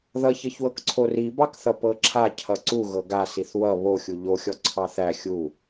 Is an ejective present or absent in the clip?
absent